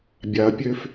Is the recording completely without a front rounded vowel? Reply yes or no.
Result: no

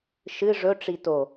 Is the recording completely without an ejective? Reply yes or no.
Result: yes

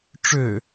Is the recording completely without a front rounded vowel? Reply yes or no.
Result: no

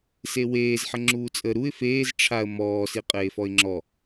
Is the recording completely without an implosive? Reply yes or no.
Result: yes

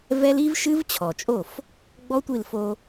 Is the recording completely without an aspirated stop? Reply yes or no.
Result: no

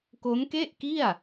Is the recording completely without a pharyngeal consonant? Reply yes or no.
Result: yes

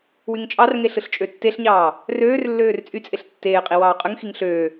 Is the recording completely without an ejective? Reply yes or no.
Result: no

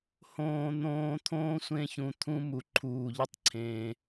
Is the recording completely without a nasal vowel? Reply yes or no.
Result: no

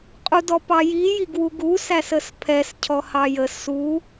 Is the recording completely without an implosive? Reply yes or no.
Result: yes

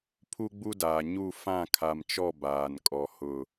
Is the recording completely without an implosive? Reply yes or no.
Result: yes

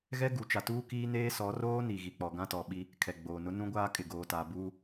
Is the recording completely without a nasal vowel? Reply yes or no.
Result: no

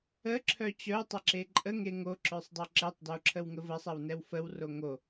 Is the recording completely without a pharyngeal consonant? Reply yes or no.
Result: yes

